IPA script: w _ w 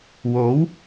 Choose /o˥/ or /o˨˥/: o˨˥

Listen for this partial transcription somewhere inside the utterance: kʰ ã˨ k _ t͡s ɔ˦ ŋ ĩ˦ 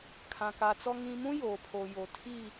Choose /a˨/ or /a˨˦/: a˨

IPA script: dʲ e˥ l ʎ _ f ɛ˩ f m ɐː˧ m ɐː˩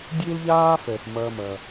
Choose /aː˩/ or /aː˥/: aː˥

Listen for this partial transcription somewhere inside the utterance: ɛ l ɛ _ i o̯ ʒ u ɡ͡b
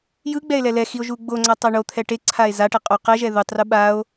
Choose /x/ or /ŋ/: x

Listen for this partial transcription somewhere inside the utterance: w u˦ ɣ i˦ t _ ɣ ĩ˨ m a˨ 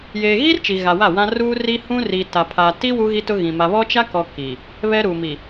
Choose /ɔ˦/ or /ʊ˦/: ʊ˦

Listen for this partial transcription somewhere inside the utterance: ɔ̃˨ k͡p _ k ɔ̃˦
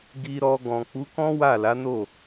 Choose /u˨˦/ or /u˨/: u˨˦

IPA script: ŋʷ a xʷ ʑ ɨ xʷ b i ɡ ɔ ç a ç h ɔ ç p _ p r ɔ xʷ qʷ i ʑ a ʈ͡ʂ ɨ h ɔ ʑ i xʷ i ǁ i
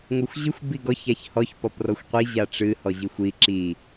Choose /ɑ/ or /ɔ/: ɔ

